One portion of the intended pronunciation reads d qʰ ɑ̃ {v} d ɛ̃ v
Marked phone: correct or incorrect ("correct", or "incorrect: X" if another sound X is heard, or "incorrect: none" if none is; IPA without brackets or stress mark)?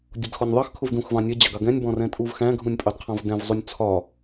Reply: correct